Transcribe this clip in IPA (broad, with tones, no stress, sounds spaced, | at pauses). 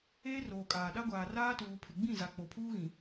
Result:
eː˦ r oː˨ kʼ aː˨ ɗ a˦ ɡʷ aː˨ r aː˦ t uː˨ pʰ ɪ˨ ɡ͡b ĩ˦˨ z a˨ k͡p o˨ pʰ uː˦ ɣ ĩ˨